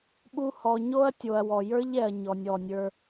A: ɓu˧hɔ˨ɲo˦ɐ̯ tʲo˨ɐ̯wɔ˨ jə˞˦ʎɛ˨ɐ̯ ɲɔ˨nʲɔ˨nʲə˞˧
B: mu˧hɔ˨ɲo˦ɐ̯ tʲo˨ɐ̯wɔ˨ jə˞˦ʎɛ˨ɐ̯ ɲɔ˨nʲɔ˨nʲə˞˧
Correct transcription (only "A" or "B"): A